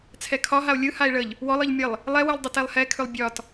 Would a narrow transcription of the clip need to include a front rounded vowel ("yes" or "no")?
yes